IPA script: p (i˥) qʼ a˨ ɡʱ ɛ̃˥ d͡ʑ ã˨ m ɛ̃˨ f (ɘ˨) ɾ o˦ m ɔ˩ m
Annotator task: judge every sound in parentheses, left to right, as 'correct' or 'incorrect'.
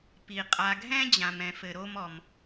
incorrect: i˩, correct

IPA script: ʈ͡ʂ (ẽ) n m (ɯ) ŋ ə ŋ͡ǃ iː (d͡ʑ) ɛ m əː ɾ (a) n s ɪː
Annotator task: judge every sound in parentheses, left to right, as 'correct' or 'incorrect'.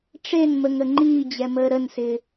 incorrect: e, incorrect: ə, correct, incorrect: ə

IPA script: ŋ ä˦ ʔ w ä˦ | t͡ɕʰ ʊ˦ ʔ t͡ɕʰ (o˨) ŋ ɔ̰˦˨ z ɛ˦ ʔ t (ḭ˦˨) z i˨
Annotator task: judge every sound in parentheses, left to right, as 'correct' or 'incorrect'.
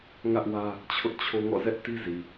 incorrect: o˦, incorrect: i˦

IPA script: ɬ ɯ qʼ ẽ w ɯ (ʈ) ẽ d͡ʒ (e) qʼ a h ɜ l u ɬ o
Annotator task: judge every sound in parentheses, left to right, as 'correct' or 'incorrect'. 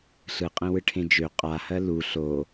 incorrect: ʈʰ, incorrect: ø

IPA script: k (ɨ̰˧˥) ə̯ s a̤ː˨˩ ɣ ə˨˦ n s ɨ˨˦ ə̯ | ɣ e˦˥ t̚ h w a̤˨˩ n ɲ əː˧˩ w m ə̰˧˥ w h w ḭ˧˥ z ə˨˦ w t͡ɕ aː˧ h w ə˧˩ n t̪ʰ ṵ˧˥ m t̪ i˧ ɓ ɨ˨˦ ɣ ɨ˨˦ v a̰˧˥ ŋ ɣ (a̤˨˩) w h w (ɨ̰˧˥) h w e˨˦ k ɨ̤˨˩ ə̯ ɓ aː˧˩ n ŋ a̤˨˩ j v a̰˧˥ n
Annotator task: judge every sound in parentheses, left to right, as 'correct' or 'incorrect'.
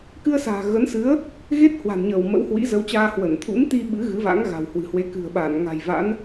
incorrect: ɨ˧, correct, incorrect: ɨ̤˨˩

